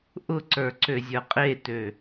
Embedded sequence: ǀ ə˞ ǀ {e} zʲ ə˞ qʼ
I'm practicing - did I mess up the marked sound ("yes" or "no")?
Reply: yes